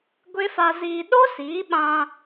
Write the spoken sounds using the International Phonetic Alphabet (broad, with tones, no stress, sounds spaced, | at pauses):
ɡʷ e˦ f a˧ z iː˧ ɗ o˦ s iː˨˦ ɓ ã˧